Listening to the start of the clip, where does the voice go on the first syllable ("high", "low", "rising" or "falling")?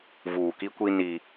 low